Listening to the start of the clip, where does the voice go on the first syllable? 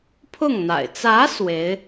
falling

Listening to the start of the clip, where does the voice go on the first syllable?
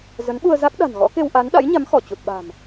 rising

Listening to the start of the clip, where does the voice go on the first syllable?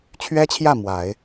high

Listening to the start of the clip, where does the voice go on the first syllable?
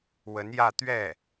rising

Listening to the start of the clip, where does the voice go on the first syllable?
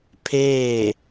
falling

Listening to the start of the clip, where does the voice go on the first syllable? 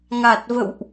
low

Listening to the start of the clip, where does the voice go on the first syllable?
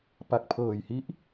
low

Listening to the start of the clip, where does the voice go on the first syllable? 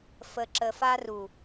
low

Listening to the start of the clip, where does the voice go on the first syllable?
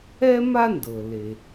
high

